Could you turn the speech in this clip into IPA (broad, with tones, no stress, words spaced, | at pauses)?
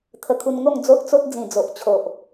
t̪ʰə˧kʰu˧nŋo˥˧ŋ d͡zo˦ʔt͡so˦t̚d͡zĩ˨˩ d͡zo˨ʔ t͡ɕʰo˨ʔ